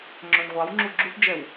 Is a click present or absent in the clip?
present